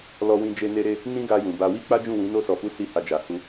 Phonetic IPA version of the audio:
l ɔ˧ w ĩ˧ d͡ʒ e˧ n e˧ ɾ e˧ | n ĩ˦ ɡ a˧ j ũ˨ b a˧ w i˦ k͡p a˦ d͡ʒ ũ˦˨ w ĩ˨˦ n o˧ s ɔ˨ f u˨˦ s i˦˨ h a˧ d͡ʒ a˨ h u˧

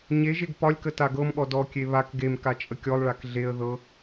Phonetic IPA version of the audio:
ɲ e ʒ e ɡ p ɒ lʲ k ə t a ɡ ɤ m ɠ ɔ d ɔ kʲ e β a k ɡ e m k a t͡ʃʼ ə kʲ ɔ lˠ ɭ a k ɮ e ə̯ ð ɤ

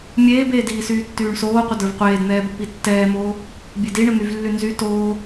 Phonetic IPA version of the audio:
mʲ eː b eː d iː s yː tː yː ɳ s oː qʷ ə d ə˞ v qʷ eː d n̪ ɛː b o p i tː ɛː m oː | bʲ e d i ɳ ə n̪ y v lː y n z y t oː

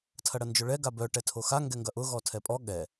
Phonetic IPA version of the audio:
tʰ ɐ ɽ ɐ n d͡ʒ ʊ ɭ ɛ ɡ a b œ ʈ ɛ tʰ o x a ŋ ɡ ɛ ŋ ɡ ɐ ʔ ʊ ɣ ɔ tʰ ɛ pʼ ɔ ɠ ɛ

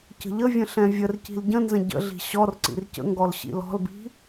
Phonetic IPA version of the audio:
c ə̤ ʎ ə vʲ ə̃ ɬ ɛ̃ vʲ ə r c i̤ l ɟ ə̃ n z ə̃ ɟ ə̰ ɮ i̤ ɕ ɔ r ǀ ḭ r c ə̰ ŋ ɡ ɔ l ɕ ḭ l ɔ̤ l b i̤

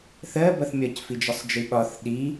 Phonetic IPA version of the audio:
θ ɜ b ʌ θ mʲ ɒ c f i d͡ʒ ʌ sˤ d͡ʒ i ɓ ɒ θ ɗ i

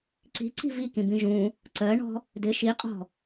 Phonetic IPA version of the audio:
ǀ i̤ ǀ i̤ v i k ĩ b ĩ ʒ ũ | ǀ ɜ ɳ ɔ̤ | d ɪ ʃ i qʼ ɔ̤

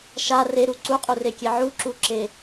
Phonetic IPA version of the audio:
ʃ a r e ɾ u ǀ u qʼ u r e kʲ e ʕ u ǁ u ǁ e

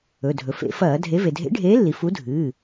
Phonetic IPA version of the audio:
ɵ˩˧˩ dʱ ɵ˩ f ḛ˧˩˧ f ɐː˧˩˧ dʱ e˨˥ v e˩ dʱ ḛ˨˥ ɖʱ eː˨˥ lː i˩ f u˨˥ dʱ ɨː˩˧˩

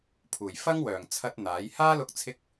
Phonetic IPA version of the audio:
pʰ uː˨˩ j f ɐ˥ ŋ w œː˨˩ ŋ t͡sʰ ɐ˧ t̚ n̪ aː˨˥ j h aː˥ l ʊ˧ k̚ t͡sʰ ɪ˥ k̚

